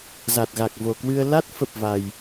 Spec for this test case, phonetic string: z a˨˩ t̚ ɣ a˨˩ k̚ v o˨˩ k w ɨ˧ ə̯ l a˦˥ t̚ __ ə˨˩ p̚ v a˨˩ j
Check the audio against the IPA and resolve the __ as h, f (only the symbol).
f